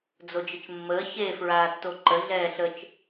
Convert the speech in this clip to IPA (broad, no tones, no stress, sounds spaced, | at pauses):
d͡z o d͡ʒ ə t͡ʃ mː əː ç e f ɹ aː tː o ǃ ə ɮ ɛː ɬ ə t͡ʃ